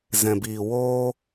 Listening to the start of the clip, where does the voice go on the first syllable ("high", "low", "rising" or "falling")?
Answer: low